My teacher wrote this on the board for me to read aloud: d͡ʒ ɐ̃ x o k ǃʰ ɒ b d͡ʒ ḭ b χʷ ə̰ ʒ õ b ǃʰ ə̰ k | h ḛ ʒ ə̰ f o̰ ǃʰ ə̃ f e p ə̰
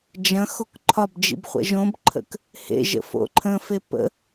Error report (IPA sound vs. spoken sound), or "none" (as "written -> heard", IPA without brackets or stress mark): none